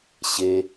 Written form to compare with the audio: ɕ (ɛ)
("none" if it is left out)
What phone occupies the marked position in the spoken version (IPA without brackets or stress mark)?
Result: e